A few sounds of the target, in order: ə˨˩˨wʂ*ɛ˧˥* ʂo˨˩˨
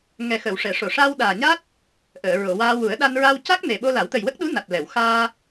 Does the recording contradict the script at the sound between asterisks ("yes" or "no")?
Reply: yes